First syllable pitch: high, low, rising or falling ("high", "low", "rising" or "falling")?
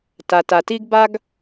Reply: low